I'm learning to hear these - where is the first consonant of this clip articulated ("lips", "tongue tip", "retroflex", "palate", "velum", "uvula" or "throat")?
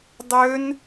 tongue tip